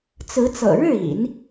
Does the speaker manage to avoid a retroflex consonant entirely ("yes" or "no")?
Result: no